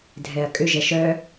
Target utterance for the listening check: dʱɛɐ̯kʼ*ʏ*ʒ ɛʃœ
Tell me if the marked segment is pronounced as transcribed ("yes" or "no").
yes